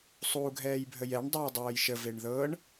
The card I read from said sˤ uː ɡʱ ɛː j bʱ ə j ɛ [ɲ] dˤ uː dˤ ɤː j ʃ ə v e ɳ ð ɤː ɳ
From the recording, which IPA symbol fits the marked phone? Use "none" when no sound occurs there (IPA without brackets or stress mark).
ɳ